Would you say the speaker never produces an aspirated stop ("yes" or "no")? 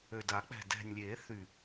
yes